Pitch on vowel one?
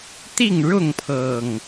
falling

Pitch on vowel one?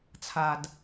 low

